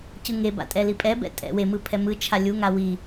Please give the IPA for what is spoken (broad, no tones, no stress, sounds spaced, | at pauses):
c ɯ ŋ e b a̰ tʼ ɛ l i pʼ ɛ b ɛ̰ tʼ ɛ̰ w e m ɯ pʰ ɛ m ɯ t͡ʃʰ a lʲ u ŋ a w i